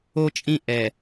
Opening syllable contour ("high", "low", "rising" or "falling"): high